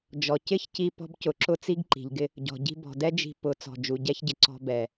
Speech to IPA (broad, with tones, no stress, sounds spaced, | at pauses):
d͡ʒ ɔ˨ c ɪ˦ ç c i˧ p ɔ̤˧ b c ʊ˨ ǁ ʊ˧ t͡s i˦ ɡ ǃ i̤˨ ʎ ɡ ɪ˦ | ɟ ɔ̤˨ ɟ i̤˧ b ɔ̤˨ d ɛ˦ d͡ʒ i̤˧ p ʊ˨˦ t͡s ɔ̤˨ d͡ʒ u˨ ɟ ɛ˦ ç ɟ ɪ˨ ǀ ɔ̤˧ b ɛ˨